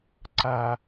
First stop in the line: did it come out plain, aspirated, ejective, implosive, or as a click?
click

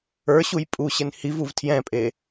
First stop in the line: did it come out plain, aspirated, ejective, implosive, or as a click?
ejective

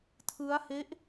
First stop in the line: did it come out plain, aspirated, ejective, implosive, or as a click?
aspirated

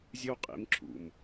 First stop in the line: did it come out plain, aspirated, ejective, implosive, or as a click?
ejective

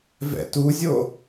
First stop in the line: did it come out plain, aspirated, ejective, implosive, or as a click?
plain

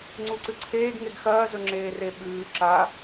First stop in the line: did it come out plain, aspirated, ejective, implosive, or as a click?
click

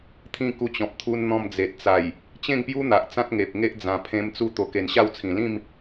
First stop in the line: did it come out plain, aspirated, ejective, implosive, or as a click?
aspirated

